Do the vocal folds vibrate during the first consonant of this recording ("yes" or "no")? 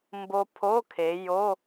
yes